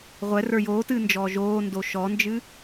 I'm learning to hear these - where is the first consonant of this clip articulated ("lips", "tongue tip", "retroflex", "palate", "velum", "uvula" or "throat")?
uvula